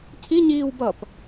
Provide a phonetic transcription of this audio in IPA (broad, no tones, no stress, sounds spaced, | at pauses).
cʰ i ɲ iː w b ʌ p